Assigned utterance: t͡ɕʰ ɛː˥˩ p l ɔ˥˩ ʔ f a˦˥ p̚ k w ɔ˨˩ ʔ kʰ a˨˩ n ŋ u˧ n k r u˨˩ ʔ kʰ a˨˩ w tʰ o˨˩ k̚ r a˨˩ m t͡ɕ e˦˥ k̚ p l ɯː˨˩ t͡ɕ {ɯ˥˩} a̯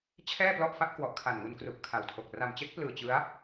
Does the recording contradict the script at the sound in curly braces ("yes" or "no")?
yes